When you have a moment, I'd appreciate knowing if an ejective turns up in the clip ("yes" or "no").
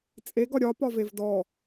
yes